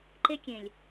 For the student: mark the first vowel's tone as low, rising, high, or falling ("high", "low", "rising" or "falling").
high